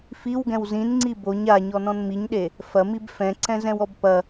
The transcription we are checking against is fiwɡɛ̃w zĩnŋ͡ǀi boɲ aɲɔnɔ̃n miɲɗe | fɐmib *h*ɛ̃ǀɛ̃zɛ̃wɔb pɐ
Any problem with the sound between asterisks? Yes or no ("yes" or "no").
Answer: yes